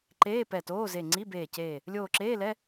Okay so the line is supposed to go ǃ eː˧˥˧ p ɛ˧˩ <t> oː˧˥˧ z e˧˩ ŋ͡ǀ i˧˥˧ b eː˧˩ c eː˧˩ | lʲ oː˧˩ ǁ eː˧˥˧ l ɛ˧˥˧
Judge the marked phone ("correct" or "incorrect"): correct